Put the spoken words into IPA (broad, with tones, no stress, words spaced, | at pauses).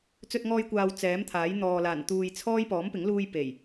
t͡sɵ˧t̚ŋɔː˧jkʷaː˨w t͡sɛː˨˥mt̪ʰaː˨˥jn̪ɔː˨laː˨˩n t̪uː˨jt͡sʰɔː˥j pɔː˨˥mpɪ˨˥ŋluː˧j pe˨˩j